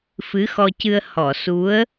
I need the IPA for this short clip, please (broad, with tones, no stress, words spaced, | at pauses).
fɨ˧˥xɔ˧cɨ˧ə̯ hɔ˨˩˨su˧˥ə̯